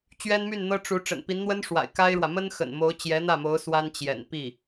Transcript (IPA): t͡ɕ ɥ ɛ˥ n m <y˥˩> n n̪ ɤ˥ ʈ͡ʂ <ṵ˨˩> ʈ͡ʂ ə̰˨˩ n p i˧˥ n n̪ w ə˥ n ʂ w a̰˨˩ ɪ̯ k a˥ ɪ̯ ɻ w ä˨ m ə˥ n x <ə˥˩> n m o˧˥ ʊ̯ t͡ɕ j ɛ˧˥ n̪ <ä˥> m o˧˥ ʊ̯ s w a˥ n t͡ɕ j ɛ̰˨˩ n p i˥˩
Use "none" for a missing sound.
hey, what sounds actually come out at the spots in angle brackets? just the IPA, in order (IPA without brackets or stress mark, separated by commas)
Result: y˥˩, u˧˥, ə̰˨˩, ä˥˩